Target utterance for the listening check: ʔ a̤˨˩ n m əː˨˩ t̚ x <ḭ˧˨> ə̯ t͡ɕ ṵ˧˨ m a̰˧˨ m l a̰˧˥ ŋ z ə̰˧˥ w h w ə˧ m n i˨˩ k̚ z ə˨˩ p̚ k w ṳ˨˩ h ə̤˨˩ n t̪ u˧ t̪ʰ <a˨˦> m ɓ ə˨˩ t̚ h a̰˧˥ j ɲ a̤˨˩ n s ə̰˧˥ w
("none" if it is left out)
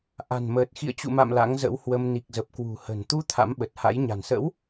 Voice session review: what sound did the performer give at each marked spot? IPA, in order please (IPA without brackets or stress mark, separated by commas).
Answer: ḭ˧˨, a̰˧˥